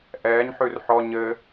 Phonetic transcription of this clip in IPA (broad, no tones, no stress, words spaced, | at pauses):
ʔɛːɲ ħʉrħɔ ɲɘ